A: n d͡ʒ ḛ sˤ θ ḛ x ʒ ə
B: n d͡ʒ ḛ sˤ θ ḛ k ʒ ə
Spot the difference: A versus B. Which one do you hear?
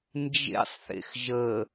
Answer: A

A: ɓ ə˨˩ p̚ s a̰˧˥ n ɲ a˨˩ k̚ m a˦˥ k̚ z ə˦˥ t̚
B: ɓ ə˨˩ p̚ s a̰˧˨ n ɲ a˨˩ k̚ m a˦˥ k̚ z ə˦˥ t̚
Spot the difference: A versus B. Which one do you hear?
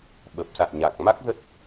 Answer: B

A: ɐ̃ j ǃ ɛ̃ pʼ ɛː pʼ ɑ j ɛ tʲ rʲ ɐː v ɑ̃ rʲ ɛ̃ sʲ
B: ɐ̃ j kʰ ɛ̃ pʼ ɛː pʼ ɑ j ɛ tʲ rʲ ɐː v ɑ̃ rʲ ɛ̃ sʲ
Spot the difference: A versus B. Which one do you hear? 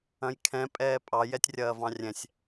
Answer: B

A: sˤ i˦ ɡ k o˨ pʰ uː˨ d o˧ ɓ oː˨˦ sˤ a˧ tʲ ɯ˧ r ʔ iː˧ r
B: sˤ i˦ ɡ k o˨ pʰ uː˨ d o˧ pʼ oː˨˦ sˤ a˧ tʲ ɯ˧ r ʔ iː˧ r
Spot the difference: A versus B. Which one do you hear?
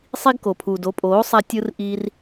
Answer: B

